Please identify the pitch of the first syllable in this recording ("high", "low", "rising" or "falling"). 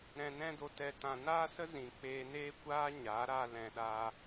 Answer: low